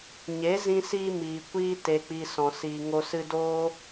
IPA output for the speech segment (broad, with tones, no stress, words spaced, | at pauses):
ɲe˨˦ zĩ˧siː˧ miː˨kʷiː˦ te˨k͡pi˨ sɔ̃˨siː˨ŋo˧sɨ˧ doː˦